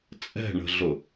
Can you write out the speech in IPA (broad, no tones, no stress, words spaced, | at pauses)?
t͡sʼɛ̤ɳə̤ɮʊ